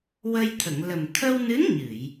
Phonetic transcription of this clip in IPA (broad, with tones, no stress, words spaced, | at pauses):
wə˧jt̪ʰə˨˩˨ŋ lə˨˩m t̪ʰə˧wnɨ˧˥n ɲɨ˨˩˨j